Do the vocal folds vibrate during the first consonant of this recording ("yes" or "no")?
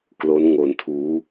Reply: no